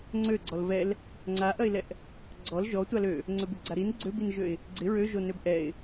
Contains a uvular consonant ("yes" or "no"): no